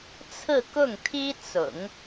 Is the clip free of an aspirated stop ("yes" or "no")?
no